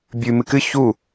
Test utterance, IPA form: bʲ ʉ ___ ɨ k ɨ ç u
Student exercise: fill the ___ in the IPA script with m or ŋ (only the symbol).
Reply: m